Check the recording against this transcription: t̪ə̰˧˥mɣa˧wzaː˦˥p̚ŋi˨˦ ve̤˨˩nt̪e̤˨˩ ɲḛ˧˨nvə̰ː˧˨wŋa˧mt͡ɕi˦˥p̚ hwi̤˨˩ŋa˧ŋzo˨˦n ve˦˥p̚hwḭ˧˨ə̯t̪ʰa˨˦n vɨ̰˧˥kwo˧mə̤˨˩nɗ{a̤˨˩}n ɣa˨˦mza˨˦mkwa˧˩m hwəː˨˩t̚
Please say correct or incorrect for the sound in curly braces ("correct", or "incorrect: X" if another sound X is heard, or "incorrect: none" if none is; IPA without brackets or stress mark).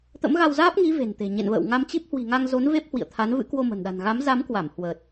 correct